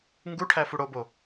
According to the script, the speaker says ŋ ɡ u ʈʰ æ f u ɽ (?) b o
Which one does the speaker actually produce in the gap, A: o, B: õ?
A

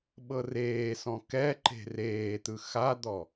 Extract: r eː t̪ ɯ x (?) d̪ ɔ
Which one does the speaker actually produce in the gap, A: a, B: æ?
A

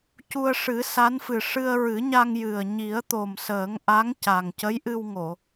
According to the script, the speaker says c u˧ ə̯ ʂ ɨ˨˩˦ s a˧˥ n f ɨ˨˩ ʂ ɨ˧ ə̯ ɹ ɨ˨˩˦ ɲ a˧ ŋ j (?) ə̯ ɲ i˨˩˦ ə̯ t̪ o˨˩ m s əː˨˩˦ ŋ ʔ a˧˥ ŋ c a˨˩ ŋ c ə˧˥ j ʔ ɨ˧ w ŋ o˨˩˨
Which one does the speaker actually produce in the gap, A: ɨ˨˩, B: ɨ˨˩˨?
A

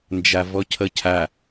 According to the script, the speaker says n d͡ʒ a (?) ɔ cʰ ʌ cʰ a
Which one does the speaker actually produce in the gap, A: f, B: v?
B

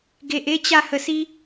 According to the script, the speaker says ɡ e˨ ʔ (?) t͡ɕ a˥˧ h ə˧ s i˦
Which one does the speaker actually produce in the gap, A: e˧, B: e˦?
B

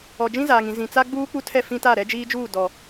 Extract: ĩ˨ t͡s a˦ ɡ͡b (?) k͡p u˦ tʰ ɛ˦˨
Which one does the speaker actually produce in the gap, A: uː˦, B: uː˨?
A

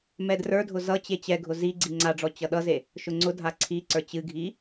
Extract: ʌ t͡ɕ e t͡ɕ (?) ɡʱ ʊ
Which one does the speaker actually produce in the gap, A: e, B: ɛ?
B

